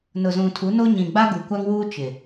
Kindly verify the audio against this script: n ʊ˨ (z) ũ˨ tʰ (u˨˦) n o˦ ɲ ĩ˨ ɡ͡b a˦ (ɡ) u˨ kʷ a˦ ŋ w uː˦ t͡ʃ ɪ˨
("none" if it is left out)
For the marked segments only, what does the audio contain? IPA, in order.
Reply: z, u˨˦, ɡ

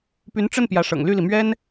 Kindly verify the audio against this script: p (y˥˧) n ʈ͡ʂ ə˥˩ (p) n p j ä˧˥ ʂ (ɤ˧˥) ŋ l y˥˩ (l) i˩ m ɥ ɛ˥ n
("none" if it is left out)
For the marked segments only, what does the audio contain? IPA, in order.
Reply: y˧˥, none, ɤ̰˨˩, l

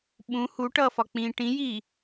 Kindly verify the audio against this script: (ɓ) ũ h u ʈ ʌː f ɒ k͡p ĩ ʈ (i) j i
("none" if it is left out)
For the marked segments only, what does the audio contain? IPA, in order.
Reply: ɓ, ĩ

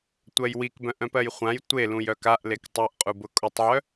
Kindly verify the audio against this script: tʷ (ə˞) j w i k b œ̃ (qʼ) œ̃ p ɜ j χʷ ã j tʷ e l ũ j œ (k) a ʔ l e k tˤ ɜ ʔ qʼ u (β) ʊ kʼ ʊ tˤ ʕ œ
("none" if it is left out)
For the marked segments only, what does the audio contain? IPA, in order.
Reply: ɜ, ʔ, k, b

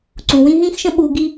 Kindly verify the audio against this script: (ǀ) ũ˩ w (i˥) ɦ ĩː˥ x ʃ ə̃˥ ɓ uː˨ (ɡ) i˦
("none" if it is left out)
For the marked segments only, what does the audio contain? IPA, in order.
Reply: ǀ, ĩ˥, ɡ

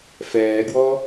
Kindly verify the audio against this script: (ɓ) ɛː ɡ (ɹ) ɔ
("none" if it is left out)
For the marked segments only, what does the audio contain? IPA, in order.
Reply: f, w

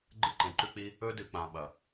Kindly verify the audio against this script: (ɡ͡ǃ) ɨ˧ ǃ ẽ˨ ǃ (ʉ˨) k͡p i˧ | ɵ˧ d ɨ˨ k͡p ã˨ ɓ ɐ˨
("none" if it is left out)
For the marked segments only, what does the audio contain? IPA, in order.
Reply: ɡ͡ǃ, ʉ˧

